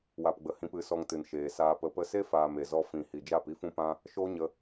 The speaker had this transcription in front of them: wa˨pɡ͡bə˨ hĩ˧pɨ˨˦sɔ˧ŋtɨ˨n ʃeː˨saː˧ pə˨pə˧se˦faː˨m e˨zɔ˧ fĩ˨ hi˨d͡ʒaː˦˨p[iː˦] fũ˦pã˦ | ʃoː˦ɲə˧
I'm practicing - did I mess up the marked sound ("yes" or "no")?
yes